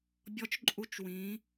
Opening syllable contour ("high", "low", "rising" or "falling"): rising